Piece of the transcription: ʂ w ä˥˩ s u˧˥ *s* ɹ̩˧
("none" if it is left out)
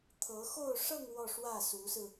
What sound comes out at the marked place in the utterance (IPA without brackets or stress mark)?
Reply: s